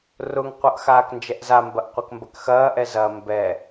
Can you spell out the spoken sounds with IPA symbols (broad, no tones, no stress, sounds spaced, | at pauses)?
r ʊ ŋ qʷ ʌ ʔ x aː k n d͡ʒ ɛ ʔ z a m b ɐ ʔ qʷ ɛ k m b ɐ k x ɐː ʔ ɛ z ɐ m b ɛ